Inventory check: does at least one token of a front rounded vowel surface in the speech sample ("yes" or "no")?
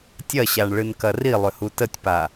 yes